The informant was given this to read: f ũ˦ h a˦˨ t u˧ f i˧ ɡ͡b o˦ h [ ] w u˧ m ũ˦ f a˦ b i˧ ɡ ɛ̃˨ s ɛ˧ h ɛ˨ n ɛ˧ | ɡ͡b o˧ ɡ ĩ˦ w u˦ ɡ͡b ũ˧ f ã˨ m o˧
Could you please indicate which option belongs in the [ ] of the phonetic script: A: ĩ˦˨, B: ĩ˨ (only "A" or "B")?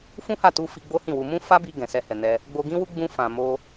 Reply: A